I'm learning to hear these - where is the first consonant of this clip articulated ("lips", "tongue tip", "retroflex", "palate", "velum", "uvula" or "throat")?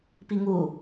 lips